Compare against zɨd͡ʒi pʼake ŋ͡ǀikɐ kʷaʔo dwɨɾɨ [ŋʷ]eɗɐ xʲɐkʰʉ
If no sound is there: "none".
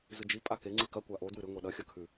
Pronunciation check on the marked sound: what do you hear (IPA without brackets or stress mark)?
ŋʷ